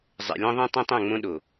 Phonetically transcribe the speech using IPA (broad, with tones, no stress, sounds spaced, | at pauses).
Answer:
zˤ ɛ̰˨ lʲ ɔ̃˦ ðˤ ẽ˦ tˤ ĩ˦ tˤ õ˦˨ ŋ͡m õ˦ ɗ o˨